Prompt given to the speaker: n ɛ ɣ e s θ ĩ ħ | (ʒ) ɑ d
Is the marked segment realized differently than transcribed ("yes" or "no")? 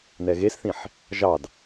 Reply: no